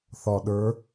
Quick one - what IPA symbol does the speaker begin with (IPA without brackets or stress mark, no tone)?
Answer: θ